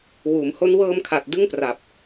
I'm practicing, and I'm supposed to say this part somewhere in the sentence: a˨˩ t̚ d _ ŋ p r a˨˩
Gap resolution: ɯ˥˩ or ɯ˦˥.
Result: ɯ˥˩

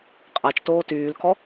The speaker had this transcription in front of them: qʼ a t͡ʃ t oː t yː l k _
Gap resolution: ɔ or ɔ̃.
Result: ɔ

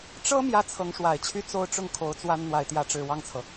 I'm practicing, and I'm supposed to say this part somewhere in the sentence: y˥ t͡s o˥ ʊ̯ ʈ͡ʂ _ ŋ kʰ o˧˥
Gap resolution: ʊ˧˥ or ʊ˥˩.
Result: ʊ˥˩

